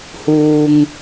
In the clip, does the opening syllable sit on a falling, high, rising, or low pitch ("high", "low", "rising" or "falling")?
low